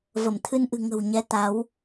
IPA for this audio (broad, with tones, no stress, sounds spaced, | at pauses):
v ə˧˩ m t̪ʰ ɨ˧ n ʔ ɨ̤˨˩ ŋ ə̤˨˩ w ɲ ɛ˨˦ t̪ a˨˦ w